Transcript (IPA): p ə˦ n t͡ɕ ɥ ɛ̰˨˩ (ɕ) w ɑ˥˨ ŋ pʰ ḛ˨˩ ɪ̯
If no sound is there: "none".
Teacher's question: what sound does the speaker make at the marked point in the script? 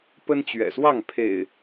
s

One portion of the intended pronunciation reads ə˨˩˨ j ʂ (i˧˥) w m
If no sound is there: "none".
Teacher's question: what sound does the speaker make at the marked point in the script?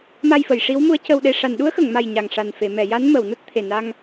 i˧˥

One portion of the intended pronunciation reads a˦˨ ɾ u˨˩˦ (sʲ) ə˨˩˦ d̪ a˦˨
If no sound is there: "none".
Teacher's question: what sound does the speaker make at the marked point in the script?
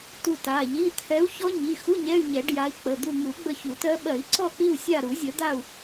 zʲ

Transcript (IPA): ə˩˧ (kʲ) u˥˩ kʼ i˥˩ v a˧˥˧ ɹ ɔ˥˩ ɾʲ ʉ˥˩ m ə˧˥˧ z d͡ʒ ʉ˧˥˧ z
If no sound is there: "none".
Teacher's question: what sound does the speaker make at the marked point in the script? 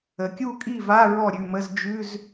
kʲ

